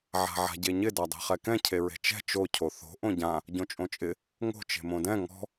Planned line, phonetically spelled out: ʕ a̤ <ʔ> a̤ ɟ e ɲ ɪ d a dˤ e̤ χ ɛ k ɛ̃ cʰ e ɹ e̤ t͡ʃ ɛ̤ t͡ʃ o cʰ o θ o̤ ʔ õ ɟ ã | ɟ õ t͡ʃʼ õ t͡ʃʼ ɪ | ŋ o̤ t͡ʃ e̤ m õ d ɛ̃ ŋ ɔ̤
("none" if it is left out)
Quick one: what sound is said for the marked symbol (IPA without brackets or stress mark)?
ʕ